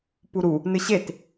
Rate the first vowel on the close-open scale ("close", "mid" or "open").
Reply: close